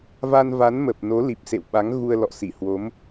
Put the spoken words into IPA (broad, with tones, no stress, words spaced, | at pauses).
va˧nva˨˦nmə˨˩p̚ no˨˦li˨˩p̚sḛ˧˨wɓa˨˦ŋ ɣu˧ə̯lɔ̰˧˨si˧˩hwo˨˦m